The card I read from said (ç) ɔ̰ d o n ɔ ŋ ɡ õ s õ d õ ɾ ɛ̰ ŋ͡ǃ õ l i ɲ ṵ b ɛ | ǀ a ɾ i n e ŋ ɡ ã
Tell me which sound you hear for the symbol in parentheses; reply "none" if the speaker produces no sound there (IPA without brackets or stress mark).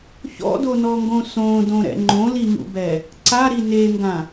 ç